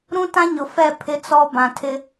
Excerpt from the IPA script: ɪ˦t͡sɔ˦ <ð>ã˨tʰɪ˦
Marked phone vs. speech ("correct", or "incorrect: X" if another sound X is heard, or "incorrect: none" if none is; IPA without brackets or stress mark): incorrect: b